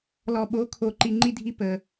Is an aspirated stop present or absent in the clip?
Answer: present